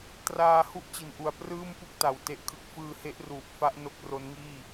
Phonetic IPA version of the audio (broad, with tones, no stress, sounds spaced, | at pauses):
t r aː˧ h u˥˩ ʔ t͡ɕ i˨˩ n ʔ u˨˩ a̯ p r ɯː˥˩ m p u˥˩ k̚ t a˨˩ w t e˦˥ ʔ kʰ ɯ˦˥ k̚ f ɯː˧ h e˦˥ ʔ r uː˨˩ p̚ f a˦˥ ʔ n o˦˥ k̚ r o˦˥ n ŋ iː˥˩